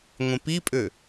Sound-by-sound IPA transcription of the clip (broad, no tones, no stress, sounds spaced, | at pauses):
ŋʷ ẽ p i pʼ ø